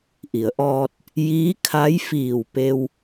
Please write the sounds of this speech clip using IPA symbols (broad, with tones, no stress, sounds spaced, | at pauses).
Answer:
ʔ i˩˧ ə̯ ʔ ɔː˧ t̚ | j iː˧˥ kʰ a˧˥ j f iː˧˩ w p e˧ w